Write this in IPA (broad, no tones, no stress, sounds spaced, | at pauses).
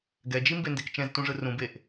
ɡ ɛ d͡ʒ i m b e n d e k t͡ʃ ɛ̃ z t ũ ʐ ɯ r ũ b e ʔ